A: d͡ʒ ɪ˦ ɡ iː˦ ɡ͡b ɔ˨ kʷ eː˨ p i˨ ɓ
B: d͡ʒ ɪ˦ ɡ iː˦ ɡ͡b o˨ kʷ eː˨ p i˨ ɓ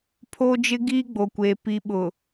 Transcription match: B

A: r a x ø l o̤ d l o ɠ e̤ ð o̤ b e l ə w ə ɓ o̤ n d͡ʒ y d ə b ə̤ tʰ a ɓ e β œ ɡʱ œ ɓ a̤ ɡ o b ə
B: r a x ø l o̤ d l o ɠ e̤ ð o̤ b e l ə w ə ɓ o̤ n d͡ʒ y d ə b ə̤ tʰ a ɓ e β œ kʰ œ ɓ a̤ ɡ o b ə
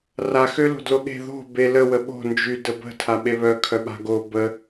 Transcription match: B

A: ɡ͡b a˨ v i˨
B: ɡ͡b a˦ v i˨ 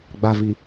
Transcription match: A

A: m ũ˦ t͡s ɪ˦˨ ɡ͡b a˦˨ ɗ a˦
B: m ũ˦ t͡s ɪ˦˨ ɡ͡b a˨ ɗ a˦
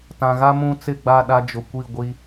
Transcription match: A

